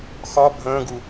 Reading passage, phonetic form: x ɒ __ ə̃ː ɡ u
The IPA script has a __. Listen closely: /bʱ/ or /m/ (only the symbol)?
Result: bʱ